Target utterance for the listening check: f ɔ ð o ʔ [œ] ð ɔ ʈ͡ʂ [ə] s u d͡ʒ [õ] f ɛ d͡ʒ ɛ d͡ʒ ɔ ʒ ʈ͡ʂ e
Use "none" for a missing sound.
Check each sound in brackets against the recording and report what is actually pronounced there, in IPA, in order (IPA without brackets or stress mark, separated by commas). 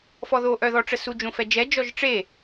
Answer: œ, ə, õ